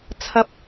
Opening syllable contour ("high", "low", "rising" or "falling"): high